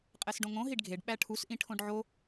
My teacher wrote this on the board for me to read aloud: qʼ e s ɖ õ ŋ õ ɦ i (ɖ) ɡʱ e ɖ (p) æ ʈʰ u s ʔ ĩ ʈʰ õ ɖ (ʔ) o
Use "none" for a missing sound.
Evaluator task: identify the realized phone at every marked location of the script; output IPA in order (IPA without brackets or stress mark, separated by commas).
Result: ɖ, ɓ, ʕ